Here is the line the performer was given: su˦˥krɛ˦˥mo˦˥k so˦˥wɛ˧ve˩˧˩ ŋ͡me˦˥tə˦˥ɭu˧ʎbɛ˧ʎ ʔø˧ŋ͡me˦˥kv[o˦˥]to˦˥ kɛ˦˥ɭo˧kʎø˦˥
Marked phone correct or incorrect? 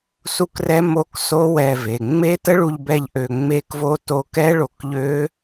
correct